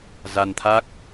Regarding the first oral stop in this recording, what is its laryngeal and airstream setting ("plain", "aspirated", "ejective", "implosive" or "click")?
aspirated